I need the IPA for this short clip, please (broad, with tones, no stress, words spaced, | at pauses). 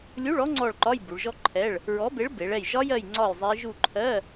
lʲu˧˥˧ɭɔ˦˥ ŋ͡ǀɔ˦˨ɭǃɒ˧˥˧j bu˩˧ɭʒɔ˦˥ǃʰɛ˧˥˧ɭ | ɹɔ˨˥be˨˥ɭbe˩˧ɭ ɛ˦˨j ʒɒ˦˥jɜ˦˨j ŋ͡ǀɒ˦˨j zˤe˦˥ ʒu˦˨ǃʰɜ˧˥˧